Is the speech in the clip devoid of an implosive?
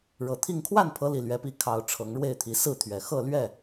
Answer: yes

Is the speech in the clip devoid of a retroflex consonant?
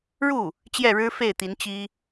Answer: no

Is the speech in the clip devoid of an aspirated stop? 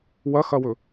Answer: yes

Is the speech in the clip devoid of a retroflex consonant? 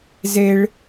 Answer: no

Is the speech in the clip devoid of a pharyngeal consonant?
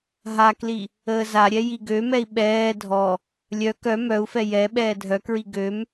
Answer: yes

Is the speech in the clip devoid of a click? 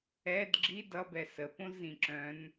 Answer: no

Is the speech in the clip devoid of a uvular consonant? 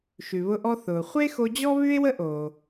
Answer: no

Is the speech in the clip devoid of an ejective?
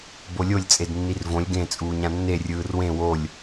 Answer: no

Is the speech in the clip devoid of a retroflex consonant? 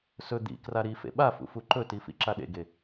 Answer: yes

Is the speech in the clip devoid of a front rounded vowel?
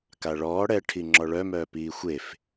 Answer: no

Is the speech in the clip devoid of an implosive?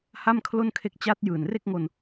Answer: yes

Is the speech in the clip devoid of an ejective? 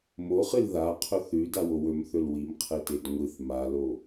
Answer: yes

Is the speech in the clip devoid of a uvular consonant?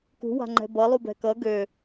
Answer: yes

